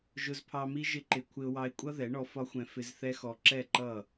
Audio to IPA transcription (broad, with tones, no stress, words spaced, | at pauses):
ʒʊ˧zpʰɑ˧mi˦ ʒɪ˦ǃɪ˧ kʷʰɪ˧ʊ̯wɑ˧ɪ̯kʷʼʌ˦ ðɛ˨˦ɳɔ˧fɒ˦xʷɛ̃˧ fɪ˧zθɛ˦xɔ˧ ǁɛ˦˨ǃʌ˦˨